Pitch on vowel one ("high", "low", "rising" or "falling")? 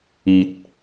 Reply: low